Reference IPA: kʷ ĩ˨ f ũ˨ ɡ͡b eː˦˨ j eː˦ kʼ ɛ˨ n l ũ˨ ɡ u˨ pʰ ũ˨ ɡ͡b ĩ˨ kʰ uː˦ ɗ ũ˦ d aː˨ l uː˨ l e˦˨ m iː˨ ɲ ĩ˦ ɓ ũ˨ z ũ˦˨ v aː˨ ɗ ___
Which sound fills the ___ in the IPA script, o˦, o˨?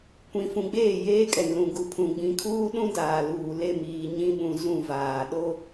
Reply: o˦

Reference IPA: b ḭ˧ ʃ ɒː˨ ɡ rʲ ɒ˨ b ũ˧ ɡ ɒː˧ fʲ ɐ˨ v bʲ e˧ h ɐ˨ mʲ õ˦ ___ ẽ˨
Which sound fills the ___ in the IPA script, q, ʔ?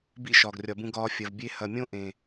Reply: ʔ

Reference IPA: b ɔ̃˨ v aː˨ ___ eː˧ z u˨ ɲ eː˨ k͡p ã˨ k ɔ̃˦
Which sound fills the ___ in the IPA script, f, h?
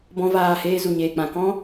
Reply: h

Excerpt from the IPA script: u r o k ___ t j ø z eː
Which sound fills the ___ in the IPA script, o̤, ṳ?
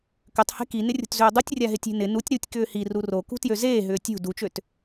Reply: ṳ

